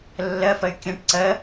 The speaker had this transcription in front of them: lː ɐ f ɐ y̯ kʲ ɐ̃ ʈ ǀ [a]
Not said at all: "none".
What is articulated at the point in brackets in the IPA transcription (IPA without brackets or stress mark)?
ɐ